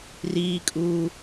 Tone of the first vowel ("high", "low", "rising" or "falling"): high